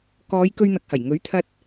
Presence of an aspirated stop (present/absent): present